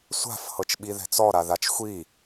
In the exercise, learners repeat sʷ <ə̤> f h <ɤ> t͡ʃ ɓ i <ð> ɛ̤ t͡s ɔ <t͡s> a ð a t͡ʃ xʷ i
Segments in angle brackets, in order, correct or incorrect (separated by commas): incorrect, correct, correct, incorrect